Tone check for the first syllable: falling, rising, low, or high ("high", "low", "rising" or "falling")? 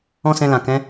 high